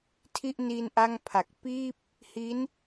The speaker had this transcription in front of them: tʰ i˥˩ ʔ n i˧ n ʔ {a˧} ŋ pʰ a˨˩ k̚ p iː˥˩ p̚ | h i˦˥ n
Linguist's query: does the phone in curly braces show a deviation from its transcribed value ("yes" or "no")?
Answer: yes